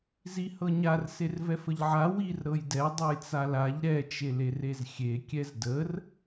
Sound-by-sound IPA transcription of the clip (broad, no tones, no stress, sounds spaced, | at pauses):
z i h ɤ ɲ a r s e r v ɛ f ə ʎ ʕ a w i r ɾ ɤ j d ɛ dˤ e j t͡s a l a ʎ ɾ ɛ t͡ʃ e l e r e z xʲ e kʲ ɛ z d ə r